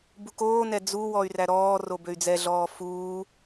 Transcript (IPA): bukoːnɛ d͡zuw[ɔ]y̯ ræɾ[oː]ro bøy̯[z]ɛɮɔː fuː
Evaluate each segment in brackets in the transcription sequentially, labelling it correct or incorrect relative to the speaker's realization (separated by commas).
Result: correct, incorrect, incorrect